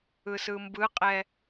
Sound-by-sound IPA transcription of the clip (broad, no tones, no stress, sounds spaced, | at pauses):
ɯ s ɯ m b ɯ qʼ ɛ